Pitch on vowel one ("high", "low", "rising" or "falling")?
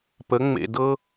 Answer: rising